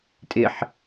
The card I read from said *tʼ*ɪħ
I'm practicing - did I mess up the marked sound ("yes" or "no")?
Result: no